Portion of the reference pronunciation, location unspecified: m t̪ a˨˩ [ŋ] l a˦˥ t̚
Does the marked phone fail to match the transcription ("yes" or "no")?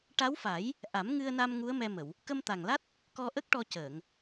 no